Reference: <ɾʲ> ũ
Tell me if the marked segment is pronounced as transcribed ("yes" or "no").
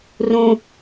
no